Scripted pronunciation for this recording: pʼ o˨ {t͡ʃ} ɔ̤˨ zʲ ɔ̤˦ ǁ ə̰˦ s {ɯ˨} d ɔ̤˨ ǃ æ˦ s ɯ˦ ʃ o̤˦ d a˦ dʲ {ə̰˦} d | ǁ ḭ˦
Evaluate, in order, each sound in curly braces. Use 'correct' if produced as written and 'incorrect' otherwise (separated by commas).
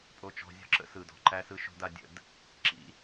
correct, correct, correct